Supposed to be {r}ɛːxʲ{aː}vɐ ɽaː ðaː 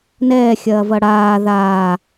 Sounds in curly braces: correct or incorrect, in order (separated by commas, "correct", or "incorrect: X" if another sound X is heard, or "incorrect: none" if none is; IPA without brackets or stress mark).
incorrect: n, incorrect: ɐː